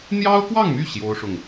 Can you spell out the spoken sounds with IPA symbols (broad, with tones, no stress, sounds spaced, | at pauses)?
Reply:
n̪ j ɑ˥ ʊ̯ k w ɑ˥˧ ŋ m y˥˩ ɕ j o˥ ʊ̯ ʂ ʊ˨ ŋ